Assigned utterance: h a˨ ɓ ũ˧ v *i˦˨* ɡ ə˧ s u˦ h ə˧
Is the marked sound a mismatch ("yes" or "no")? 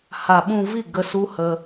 no